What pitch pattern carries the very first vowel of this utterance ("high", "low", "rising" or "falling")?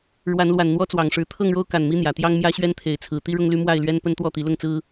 rising